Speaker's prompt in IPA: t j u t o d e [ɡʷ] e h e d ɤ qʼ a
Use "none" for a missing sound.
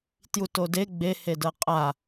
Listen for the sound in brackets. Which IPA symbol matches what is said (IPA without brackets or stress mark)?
ɡ͡b